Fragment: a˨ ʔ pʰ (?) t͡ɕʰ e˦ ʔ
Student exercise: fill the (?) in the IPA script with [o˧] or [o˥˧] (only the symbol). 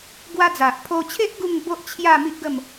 o˧